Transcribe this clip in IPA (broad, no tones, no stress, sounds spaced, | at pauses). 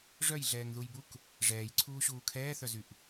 ʐ œ j ɮ ɛː ŋ ð u j b u k | ʐ ɛː j ǀʰ uː ɕ uː kʰ ɛː θ œ z y ʔ